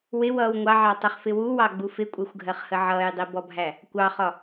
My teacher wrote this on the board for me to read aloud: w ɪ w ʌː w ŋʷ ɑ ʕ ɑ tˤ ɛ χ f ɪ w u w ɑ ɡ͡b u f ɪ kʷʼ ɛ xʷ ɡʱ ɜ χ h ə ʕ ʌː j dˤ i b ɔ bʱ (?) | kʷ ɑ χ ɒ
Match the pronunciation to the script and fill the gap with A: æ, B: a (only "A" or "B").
A